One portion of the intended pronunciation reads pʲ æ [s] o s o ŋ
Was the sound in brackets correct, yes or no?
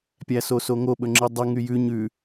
yes